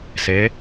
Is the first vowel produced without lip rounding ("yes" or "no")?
yes